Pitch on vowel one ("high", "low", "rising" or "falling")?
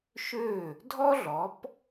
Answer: falling